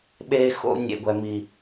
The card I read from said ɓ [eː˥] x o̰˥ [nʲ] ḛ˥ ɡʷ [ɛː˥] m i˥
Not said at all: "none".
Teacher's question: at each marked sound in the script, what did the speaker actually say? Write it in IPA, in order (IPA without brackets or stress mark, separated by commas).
eː˥, nʲ, ɛ˥